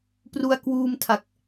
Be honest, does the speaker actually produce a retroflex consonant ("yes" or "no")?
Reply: no